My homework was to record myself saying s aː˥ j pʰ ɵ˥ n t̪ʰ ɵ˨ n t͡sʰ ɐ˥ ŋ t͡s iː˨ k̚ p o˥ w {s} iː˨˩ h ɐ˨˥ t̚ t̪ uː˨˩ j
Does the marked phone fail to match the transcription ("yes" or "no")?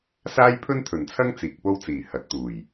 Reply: yes